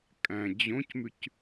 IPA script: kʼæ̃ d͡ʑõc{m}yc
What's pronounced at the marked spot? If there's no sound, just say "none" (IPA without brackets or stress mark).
m